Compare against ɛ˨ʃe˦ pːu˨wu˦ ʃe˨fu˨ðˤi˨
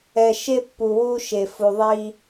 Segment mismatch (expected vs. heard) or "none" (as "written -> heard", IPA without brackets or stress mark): i˨ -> i˦